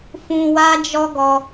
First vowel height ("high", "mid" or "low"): high